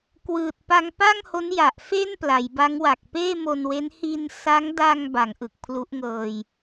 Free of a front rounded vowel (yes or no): yes